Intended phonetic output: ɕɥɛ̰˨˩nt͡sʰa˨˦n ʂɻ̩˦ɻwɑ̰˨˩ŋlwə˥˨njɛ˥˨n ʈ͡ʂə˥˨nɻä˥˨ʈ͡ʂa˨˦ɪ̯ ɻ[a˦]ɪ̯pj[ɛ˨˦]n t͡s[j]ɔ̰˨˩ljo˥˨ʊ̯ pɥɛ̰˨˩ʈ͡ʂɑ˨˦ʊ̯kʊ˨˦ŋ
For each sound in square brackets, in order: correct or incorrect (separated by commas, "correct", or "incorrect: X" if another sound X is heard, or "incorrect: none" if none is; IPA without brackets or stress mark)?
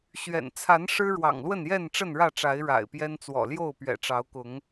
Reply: incorrect: a̰˨˩, incorrect: ɛ˦, incorrect: w